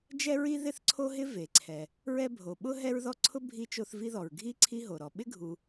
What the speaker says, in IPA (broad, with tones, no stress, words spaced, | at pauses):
d͡ʒɛ˥ɹi˥ ðɪ˥θǀʰo˥ɦɪ˥ ve˩ǀʰɛ˩ | ɹɛ˦bʱo˩ɓʊ˥ ɦɛ˦ɹðɔ˦ǀʰʊ˥ bʱi˥t͡ʃo˦θvi˥ðɔ˩ɹ ɡʱi˥ ǀʰi˦ɦo˩ɾɔ˨ ɓɪ˥ɡʱu˨